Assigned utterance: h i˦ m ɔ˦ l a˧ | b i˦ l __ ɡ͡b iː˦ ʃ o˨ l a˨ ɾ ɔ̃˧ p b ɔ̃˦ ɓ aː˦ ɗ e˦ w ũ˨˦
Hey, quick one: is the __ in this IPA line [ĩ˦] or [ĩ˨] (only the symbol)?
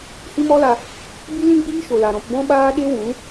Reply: ĩ˦